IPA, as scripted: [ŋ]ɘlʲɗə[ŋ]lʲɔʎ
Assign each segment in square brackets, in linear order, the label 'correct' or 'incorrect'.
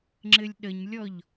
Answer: incorrect, incorrect

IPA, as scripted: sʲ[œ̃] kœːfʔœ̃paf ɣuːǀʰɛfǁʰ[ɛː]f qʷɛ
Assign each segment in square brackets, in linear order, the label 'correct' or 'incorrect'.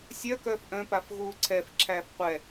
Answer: incorrect, incorrect

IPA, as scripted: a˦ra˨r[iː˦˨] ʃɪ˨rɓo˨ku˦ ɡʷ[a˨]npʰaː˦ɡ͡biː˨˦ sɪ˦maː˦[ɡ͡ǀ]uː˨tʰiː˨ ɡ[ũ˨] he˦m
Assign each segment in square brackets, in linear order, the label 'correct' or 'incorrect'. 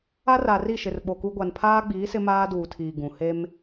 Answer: incorrect, correct, incorrect, correct

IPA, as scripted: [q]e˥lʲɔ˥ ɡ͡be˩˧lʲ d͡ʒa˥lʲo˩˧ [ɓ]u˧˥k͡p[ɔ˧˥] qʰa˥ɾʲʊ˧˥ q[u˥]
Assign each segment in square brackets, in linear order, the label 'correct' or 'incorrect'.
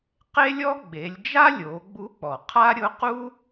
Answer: correct, incorrect, incorrect, correct

